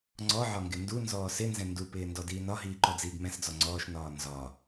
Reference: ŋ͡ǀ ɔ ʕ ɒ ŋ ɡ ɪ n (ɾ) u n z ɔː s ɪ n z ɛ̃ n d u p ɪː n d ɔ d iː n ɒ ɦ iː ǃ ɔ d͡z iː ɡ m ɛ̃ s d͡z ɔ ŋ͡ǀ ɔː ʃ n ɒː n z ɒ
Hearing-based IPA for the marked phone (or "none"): d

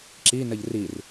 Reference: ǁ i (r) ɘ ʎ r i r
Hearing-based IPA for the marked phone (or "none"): n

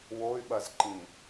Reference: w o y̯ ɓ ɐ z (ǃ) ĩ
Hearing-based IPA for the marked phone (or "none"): ǃ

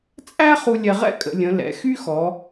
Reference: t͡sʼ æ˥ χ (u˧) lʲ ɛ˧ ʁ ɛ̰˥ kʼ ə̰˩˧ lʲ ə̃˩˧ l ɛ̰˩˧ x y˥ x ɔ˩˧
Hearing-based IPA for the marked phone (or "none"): u˧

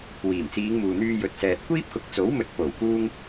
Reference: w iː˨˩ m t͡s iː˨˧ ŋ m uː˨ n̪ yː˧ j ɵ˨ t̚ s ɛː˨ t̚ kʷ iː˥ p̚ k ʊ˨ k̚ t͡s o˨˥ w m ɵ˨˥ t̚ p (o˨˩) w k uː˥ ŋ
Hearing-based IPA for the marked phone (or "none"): o˨˩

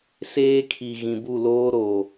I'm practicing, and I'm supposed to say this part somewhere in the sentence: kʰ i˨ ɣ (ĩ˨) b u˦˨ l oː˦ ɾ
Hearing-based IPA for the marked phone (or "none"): ĩ˨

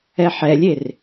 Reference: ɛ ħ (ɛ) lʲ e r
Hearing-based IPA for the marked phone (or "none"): ɛ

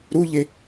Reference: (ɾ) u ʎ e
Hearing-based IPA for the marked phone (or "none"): ɾ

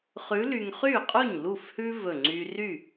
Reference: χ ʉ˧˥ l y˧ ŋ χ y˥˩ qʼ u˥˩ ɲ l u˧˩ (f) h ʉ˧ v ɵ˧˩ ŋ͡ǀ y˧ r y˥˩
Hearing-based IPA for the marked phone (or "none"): f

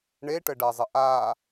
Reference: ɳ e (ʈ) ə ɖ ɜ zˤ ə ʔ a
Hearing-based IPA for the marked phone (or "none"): ʈ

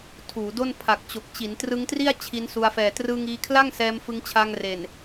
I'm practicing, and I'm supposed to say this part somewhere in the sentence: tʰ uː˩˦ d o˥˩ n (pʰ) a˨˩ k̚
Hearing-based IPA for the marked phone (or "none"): pʰ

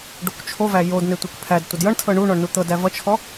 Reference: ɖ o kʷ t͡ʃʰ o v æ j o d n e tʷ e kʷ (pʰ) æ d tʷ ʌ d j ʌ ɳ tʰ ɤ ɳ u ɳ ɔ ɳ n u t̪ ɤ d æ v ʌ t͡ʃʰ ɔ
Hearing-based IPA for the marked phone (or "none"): pʰ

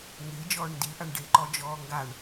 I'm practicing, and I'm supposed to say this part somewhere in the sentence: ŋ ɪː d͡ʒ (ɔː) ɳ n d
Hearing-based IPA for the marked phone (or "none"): ɔː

